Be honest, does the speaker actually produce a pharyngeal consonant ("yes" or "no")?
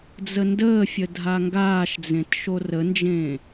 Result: no